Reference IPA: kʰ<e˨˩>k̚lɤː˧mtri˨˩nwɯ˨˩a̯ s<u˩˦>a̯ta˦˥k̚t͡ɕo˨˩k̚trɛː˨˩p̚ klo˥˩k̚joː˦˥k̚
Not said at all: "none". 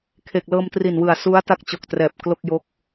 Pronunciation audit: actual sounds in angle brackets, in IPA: e˨˩, u˦˥

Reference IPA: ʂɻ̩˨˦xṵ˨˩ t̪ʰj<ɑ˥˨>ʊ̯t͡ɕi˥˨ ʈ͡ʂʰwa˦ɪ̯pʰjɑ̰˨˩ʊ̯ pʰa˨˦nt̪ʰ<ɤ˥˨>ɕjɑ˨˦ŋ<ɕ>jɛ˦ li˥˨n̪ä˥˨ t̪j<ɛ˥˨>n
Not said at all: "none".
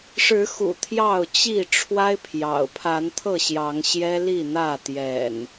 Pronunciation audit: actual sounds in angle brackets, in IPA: ɑ˥˨, ɤ˥˨, ɕ, ɛ̰˨˩

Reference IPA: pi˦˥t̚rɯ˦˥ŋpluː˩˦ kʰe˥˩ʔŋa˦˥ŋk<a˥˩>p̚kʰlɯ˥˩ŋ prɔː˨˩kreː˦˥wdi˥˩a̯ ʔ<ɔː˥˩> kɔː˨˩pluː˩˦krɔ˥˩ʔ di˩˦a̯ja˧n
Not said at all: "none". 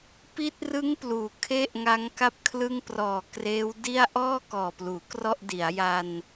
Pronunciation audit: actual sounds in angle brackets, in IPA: a˥˩, ɔː˥˩

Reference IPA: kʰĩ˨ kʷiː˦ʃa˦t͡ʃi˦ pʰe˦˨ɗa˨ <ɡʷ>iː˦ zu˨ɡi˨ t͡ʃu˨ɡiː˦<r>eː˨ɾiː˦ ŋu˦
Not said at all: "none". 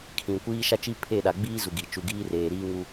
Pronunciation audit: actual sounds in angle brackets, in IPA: ɡ͡b, r

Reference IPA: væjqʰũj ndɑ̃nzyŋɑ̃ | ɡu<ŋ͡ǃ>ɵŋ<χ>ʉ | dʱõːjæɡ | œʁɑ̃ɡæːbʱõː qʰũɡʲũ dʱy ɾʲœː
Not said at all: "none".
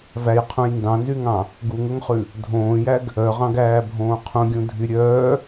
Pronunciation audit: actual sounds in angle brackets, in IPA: ŋ, χ

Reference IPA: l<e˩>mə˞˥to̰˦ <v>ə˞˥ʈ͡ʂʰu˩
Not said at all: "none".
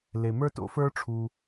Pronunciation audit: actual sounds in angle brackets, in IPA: e˩, f

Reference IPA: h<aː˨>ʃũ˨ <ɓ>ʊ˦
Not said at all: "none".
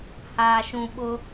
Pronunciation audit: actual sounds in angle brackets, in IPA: aː˨, ɓ

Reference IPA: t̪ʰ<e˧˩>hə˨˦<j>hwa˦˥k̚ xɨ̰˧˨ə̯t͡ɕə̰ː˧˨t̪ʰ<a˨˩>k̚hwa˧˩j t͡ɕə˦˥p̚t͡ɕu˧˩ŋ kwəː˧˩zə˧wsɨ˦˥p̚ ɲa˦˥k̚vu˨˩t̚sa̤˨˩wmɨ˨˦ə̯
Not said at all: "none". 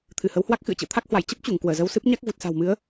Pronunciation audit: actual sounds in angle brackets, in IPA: ɨ˧˩, w, a˦˥

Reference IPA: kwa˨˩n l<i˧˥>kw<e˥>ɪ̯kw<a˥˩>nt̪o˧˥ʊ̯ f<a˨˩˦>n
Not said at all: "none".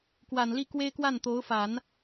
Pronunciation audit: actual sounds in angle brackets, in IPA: i˥˩, e˥, a˥˩, a˨˩˦

